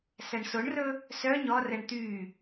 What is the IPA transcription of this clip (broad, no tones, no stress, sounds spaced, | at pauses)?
s æ ɳ s o ɳ r ɵ | s œ ɲ ɔ r ɛ ɳ t̪ y